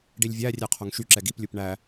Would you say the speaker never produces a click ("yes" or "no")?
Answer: no